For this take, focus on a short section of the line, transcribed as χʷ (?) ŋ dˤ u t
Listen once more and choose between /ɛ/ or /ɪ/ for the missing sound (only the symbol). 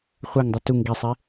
ɛ